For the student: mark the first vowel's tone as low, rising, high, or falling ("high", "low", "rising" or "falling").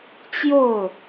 falling